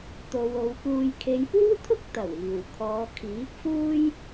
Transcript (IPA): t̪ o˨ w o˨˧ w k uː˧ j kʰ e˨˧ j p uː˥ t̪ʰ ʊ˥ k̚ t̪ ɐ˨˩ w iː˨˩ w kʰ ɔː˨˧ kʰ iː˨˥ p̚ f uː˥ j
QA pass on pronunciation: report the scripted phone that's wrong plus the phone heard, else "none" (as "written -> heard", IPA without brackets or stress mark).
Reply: none